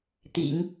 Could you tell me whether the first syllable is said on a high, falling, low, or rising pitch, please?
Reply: low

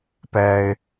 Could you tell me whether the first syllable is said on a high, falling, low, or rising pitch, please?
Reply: low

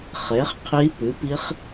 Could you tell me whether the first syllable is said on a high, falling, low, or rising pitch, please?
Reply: rising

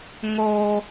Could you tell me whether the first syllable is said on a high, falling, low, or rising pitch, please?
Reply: high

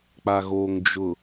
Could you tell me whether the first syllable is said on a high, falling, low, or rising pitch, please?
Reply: low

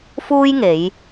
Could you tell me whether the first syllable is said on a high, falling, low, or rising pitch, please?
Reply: high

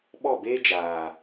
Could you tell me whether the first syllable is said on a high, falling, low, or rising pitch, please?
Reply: falling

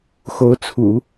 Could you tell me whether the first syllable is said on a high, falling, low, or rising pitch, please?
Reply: rising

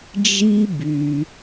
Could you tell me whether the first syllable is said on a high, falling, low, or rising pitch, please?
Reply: high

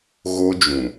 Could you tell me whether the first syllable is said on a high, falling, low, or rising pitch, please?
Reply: high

